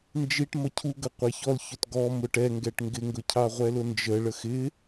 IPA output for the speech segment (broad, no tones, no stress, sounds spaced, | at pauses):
n d͡ʒ i ʈ m ʌ cʰ u ɡ ə qʷ æ ç ɔ l ç ʊ t ɡ ɔ m ʊ ʈ ɛ ŋ ɡ ɛ ʈ ŋ ɡ ɪ ŋ ɡ ʊ cʰ ɑ ʁʷ ɛ l ʊ n d͡ʒ ə ɭ ə x ɪ